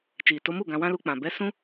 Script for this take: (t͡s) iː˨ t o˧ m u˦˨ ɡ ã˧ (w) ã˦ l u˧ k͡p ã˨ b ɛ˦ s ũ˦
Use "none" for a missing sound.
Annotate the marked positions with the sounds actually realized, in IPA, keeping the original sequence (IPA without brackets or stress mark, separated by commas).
t͡ʃ, w